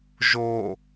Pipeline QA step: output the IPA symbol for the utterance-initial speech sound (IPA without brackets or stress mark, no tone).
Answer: ʒ